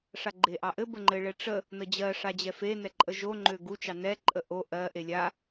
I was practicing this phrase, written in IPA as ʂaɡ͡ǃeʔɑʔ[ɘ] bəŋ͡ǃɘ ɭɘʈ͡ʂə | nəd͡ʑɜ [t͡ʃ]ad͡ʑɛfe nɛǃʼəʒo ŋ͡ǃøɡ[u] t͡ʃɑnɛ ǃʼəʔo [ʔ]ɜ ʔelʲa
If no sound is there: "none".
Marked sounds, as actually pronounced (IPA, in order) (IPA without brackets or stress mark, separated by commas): ɘ, ʂ, u, ʔ